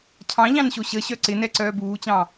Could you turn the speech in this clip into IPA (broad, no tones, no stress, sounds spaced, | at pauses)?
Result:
cʰ ɑ̃ ʎ ɑ̃ n ɕ o ɕ ə ɕ œ ǀ ɪ n ɛ ǀ œː b uː t͡ɕ ɑ̃